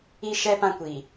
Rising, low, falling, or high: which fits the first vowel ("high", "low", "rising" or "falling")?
high